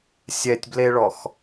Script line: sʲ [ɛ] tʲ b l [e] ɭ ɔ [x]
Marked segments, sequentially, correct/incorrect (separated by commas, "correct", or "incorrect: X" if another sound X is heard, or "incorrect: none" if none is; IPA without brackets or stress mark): correct, correct, correct